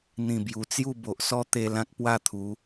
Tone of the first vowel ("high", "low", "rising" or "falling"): falling